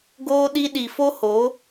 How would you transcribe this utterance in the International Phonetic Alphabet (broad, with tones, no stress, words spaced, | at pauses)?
ɡoː˧ɗi˧ɗi˨fo˦ ho˨˦